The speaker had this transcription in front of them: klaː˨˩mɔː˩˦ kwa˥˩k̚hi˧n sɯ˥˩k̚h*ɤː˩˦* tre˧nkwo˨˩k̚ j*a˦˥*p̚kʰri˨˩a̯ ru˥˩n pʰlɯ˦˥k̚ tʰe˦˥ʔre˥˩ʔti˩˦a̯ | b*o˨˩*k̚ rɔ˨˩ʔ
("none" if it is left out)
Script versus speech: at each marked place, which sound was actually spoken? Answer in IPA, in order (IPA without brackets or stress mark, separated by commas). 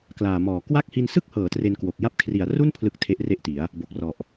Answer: ɤː˩˦, a˦˥, o˨˩